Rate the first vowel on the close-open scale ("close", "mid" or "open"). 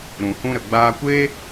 close